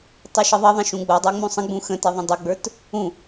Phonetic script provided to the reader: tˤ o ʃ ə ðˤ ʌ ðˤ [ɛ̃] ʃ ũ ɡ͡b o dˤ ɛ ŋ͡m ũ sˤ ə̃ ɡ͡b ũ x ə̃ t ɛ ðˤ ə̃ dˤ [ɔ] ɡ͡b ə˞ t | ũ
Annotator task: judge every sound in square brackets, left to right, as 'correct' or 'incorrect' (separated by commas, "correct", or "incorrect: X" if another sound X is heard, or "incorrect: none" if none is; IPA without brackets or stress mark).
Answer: incorrect: ə̃, incorrect: ə